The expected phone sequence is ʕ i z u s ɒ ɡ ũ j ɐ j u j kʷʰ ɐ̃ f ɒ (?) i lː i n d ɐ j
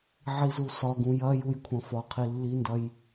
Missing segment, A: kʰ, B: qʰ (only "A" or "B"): B